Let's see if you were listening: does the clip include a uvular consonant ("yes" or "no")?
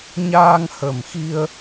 no